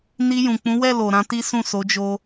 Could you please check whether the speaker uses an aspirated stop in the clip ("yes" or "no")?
no